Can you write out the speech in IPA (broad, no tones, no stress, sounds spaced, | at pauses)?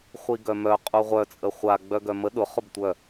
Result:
χʷ i ɡ œ m œ qʼ u ʁʷ œ t͡sʼ ə χʷ a ɡ͡b œ ɡ œ m ə ɗ ʊ χ ʊ b tʷ œ